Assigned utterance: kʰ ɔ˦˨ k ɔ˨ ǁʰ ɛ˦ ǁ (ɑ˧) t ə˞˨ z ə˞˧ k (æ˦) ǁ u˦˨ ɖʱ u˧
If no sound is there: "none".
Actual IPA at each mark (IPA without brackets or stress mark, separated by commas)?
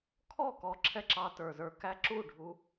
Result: ɑ˧, æ˦